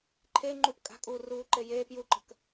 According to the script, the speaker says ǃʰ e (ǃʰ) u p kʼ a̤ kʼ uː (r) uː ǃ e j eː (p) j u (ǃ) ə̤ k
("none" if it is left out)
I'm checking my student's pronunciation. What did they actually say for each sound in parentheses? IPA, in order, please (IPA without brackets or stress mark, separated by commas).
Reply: ŋ͡ǃ, r, p, ǃ